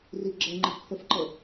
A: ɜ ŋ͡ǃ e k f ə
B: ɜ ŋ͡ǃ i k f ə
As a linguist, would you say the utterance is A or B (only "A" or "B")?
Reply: B